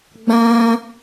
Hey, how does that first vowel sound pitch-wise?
high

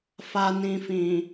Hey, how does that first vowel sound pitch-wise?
low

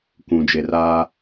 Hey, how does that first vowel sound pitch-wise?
low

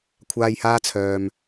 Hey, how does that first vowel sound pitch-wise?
low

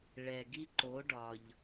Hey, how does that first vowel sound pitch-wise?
low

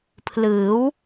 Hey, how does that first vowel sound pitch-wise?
rising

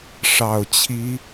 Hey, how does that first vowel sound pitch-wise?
low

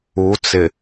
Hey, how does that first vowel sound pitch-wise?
rising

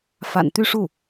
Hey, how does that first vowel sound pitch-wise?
low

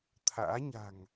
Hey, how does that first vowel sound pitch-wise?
rising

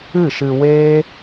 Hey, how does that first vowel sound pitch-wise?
falling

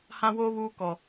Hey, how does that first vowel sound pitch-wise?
high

